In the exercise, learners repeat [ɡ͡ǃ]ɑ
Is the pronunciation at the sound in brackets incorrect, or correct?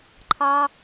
incorrect